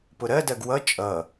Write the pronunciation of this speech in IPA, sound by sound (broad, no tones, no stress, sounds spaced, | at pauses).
p ʊ ɾ ɜ d ɜ ɡ w ʌ t͡ʃʼ ʌ